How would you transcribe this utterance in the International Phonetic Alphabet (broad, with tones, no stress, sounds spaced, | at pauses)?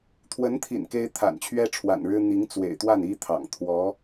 t̪ʰ w ə˧˥ n t̪ʰ ḭ˨˩ n k e˥ ɪ̯ t̪ʰ a̰˨˩ n t͡ɕʰ ɥ ɛ˥ ʈ͡ʂʰ w a̰˨˩ n ɻ ɻ̩˥ n̪ i˧˥ ŋ t͡s w ḛ˨˩ ɪ̯ t̪ w a˥˩ n i˥ t̪ʰ ɑ̰˨˩ ŋ t̪ʰ w ɔ˧˥